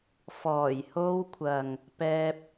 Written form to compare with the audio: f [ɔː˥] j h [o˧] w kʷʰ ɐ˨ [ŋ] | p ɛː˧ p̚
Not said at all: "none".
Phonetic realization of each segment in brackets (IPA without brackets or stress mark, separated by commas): ɔː˨˩, o˧, ŋ